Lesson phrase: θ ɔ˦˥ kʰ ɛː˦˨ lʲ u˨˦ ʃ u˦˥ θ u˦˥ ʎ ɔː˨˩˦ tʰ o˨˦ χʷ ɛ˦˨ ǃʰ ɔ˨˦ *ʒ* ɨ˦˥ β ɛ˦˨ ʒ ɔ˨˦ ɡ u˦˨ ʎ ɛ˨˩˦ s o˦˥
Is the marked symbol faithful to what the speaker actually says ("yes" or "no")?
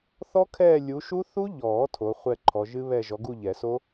yes